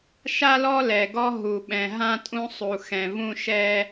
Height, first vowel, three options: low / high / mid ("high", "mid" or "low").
low